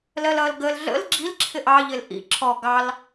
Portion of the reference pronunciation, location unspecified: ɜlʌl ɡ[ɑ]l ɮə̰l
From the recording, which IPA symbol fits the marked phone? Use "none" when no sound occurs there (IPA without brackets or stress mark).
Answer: ə